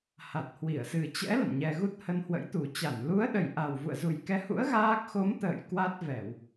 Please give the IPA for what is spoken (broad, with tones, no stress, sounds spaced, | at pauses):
h a˨˩ t̚ h w i˧˩ ə̯ s ɨ˨˩ t͡ɕ ɛ̰˧˥ l ə̰˧˨ n ɲ ɛ˧ ɣ u˦˥ t̚ h ə˧ n h w ə̰˧˥ j t̪ u˨˩ t͡ɕ a˧˩ n l u˨˦ ə̯ ɗ ə˨˩ j ʔ a˨˩ w v ṵ˧˨ ə̯ z u˨˩ j k ɛ˨˦ h ṵ˧˥ ə̯ ɣ aː˦˥ k̚ x o˨˦ m t̪ ə̰ː˧˨ j k w a˦˥ t̚ v ɛ˧˩˨ w